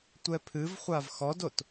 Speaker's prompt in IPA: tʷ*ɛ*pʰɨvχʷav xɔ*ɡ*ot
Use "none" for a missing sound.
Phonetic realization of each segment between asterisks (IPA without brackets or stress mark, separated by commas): ɛ, d